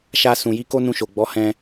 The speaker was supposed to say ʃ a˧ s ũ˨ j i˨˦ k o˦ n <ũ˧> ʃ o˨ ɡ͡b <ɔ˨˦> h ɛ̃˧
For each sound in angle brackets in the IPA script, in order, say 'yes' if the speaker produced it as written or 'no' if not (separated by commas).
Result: yes, yes